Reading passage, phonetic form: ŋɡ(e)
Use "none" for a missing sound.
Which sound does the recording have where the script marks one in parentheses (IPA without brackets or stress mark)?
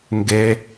e